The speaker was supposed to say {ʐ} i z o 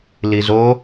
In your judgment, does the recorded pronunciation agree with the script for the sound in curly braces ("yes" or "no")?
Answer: no